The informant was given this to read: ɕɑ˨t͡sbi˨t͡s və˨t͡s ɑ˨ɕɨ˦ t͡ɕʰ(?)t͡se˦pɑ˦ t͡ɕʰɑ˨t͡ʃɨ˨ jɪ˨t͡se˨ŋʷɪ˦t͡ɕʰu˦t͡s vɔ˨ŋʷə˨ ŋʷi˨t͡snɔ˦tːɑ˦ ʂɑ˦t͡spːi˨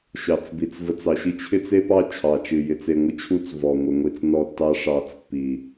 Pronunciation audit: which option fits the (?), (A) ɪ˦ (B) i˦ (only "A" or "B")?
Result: A